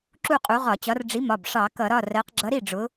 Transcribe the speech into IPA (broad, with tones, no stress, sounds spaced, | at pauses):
ǁ u˥˧ qʼ u˨˥ ʁ ɒ˧˩˧ t͡ɕ ɒ˨˥ r ɖ͡ʐ i˨˥ m ɒ˩˧˩ b ʂ ɑ˧˩˧ k ʌ˧˩˧ ɾ ɒ˩˧˩ r ɜ˩˧ q ɡ͡ǁ ʌ˨˥ ɾ i˥˩ ɖ͡ʐ ʊ˩˧